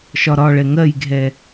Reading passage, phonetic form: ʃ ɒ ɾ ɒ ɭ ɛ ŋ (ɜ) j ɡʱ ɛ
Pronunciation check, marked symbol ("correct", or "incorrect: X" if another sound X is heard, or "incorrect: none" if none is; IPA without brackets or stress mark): correct